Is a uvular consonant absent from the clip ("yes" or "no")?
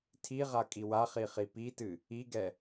no